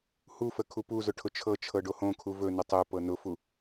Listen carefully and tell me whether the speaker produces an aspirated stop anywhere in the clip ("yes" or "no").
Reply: yes